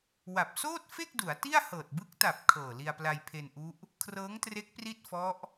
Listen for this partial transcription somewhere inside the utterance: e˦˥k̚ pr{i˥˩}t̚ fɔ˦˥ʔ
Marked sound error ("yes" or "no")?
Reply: no